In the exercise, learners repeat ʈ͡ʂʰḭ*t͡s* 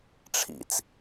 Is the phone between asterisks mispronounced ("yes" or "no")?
no